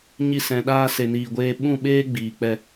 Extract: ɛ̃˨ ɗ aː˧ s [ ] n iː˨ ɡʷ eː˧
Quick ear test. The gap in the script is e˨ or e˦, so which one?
e˨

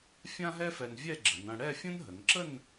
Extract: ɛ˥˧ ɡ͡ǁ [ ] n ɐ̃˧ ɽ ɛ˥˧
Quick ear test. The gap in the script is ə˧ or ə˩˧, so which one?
ə˩˧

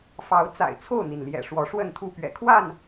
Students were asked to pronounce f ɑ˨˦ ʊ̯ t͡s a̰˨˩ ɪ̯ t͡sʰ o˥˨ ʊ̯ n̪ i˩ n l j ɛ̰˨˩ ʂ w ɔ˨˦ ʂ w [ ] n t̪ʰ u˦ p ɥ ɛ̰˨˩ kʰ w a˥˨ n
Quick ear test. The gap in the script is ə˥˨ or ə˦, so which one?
ə˥˨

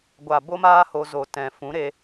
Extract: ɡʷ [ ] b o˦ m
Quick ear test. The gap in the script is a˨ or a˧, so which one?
a˨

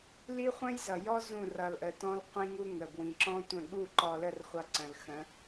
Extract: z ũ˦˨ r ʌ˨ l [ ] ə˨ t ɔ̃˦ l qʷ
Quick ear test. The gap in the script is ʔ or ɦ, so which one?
ʔ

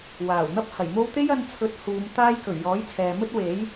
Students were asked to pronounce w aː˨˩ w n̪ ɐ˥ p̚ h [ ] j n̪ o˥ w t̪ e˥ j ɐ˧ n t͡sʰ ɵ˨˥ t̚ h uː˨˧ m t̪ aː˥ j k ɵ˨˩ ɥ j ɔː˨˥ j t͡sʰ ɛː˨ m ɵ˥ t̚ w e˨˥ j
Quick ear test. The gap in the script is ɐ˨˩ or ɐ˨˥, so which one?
ɐ˨˩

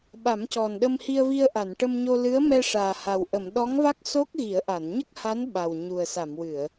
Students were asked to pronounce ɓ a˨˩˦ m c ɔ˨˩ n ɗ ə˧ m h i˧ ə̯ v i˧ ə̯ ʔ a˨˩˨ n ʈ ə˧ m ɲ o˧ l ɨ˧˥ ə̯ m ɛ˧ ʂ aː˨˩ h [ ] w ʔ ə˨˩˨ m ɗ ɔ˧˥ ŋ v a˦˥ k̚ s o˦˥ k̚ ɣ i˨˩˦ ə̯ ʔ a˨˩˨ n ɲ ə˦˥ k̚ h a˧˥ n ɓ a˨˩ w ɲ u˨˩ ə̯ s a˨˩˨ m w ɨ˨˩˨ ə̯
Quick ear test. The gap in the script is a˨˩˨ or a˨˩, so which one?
a˨˩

